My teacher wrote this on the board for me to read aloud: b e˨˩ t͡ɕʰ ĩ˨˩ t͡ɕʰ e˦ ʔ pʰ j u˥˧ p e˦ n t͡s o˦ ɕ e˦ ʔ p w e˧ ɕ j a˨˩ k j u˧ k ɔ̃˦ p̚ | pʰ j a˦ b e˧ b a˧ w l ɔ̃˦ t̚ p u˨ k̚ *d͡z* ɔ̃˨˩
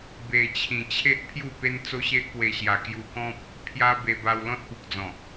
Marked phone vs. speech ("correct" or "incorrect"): correct